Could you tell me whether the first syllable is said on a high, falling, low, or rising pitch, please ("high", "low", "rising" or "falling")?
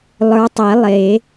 rising